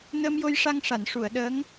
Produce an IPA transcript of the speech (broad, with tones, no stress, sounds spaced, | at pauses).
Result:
n əː˧ m j o˧ j ʂ a˧ ŋ ʂ a˨˩˨ n ʂ u˨˩˨ ə̯ ɗ əː˧˥ ŋ